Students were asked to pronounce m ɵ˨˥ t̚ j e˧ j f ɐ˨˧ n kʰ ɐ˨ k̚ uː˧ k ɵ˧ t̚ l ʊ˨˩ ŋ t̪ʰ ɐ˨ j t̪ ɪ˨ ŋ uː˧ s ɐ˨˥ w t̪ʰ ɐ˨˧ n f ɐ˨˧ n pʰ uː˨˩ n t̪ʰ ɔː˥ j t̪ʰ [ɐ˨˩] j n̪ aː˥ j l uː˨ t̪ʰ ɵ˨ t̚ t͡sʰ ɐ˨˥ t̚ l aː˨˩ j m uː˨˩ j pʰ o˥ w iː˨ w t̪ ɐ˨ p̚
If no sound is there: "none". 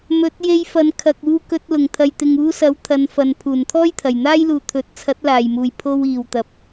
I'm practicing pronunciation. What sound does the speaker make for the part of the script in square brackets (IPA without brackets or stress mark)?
ɐ˨˩